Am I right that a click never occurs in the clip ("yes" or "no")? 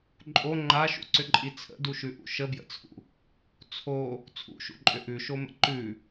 no